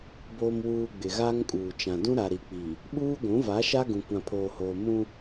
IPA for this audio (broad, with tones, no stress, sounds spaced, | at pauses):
b oː˨ m w uː˨ ɡ͡b ɪ˨ ɣ aː˦ ŋ kʼ uː˨ t͡ʃ ã˨ d ũ˦ ɾ a˨ ɾ i˨ k͡p i˨ | ɓ uː˦ ɡʷ ũ˨˦ v a˨˦ ʃ a˦ ɡ ũ˨ kʷ ã˨ pʰ oː˨ h oː˨ m ũ˦